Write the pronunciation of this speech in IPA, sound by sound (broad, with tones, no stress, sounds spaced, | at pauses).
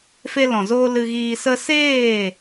f e˧ l ɔ̃˨ z oː˧ l ɨ˧ ɣ iː˧ s ə˦ s eː˦˨